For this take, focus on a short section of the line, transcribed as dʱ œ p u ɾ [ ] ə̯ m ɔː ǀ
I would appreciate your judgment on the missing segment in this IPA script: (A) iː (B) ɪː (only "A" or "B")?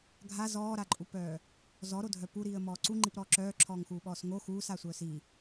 A